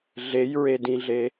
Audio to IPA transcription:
ɮejɹedĩɮe

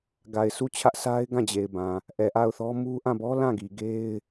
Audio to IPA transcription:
ɡa˨ɪ̯sʰu˦˨t͡ɕʰä˦ʔ sa˦ɪ̯ɡã˦˨d͡ʑe˨ɪ̯bã˨ | ʔɛ˨ ʔa˦˨ʊ̯θɔ˦ mu˦ ʔã˦˨bɔ˦ lã˦˨ɡi˨ɡe˦ɪ̯

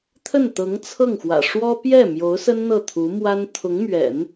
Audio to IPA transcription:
t̪ʰə˥˩n t̪ɤ˧˥ŋt͡sʰɤ˥˩ŋxwä̰˨˩ ʂwɔ˥ pjɛ˥˩ mjo˧˥ʊ̯sə˥n n̪ɤ˥˩t̪ʰu˧˥mwa˥n t̪ʰʊ˧˥ŋmɥɛ̰˨˩˦n

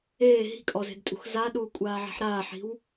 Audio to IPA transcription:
eː ɦi̤kʼɔze̤dtʼṳx zaɗuːkʷʼaːʕi̤ħ ɾaːħi̤w

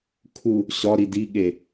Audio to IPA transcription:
kʰu | ɕɒɾi diɠe

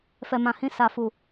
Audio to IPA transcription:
fɛ˨mã˨hĩ˧ sa˨fu˨

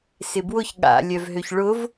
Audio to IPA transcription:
sɪbwʊç ɠa̰ lʲœvɦøçɭʊv

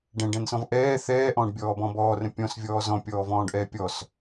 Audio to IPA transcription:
ɖɛ̃ɖɛ̃nsɔ̃v ʔɛː θɛːʔɔ̃ːɖbʲɔːbɔ̃ bɔːrə̃ pʲɔ̃svʲɔː zɔ̃pʲɔːvɔ̃ːɖʔɛː pʲɔs

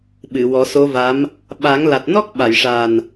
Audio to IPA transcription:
ɓɨ˨˩˨wɔ˨˩˦so˧˥va˧˥m | ɓa˨˩˦ŋla˨˩t̚ nɔ˦˥k̚ ɓa˨˩˨jʂa˨˩n

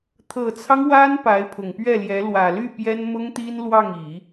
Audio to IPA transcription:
t̪ʰɤ˨˩t͡sʰɑ˦ŋ wa˥n pa˧˥ɪ̯pʰʊ˨˩ŋpɥɛ˥˩ljɛ˧˥ lwä˨˩ly˥˩ pjɛ˥nmʊ˥ŋt̪i˥n lwɑ˥˩ŋi˨˩˦

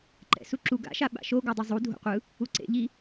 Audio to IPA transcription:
ǃɛ̰suǁu ɡa̰ʃa ɓa̰ʃoɡodˤu zˤu dʱo̰qʷɯ | uǀḛʎi

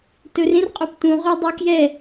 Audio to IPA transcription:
tɵrẽrqʼop tũʁœ dˤœkjɛ

